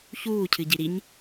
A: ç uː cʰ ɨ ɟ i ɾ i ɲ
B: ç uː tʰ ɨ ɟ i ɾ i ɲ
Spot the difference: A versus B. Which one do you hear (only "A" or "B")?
A